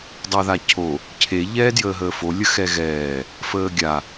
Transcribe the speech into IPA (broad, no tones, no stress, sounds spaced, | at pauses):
dˤ əː ð a cʰ o | cʰ e ʎ ɛː d j əː ɦ əː f o lʲ ə x ɛ ɣ ɛː | f əː ɡʲ a